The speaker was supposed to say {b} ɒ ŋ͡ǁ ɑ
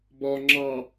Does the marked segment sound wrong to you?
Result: no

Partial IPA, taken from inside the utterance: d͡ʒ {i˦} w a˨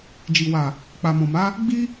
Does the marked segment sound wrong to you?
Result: yes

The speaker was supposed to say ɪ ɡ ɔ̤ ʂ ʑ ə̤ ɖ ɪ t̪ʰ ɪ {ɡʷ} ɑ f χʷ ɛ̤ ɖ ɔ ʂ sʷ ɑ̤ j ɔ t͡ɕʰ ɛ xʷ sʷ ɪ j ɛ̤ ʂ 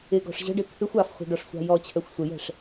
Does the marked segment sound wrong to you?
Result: yes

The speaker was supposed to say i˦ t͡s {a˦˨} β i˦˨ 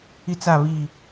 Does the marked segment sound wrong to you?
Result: no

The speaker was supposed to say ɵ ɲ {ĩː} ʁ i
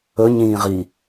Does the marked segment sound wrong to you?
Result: no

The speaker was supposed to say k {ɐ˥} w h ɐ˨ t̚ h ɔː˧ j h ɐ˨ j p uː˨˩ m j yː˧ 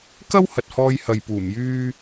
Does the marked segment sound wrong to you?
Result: no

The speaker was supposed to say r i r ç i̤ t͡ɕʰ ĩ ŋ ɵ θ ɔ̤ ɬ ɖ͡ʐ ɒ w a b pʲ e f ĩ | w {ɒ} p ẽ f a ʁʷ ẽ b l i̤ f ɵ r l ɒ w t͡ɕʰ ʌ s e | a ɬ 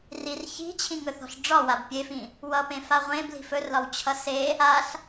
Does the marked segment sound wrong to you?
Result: yes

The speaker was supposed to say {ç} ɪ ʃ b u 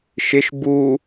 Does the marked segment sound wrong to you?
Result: yes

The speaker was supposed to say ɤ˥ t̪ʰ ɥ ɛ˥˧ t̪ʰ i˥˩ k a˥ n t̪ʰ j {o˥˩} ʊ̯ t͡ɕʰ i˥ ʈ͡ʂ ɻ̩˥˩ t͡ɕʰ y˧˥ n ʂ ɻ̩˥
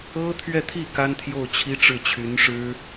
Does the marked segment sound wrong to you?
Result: no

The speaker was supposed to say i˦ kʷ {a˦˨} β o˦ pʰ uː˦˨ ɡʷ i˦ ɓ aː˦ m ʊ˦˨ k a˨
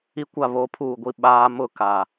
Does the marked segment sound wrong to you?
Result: no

